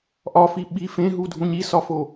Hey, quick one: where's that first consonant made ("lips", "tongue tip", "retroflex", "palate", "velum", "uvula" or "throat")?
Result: throat